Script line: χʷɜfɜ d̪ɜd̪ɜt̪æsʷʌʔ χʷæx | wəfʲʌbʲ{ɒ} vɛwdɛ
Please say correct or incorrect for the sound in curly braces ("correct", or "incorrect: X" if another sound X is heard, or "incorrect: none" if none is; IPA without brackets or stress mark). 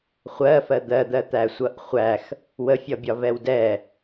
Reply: correct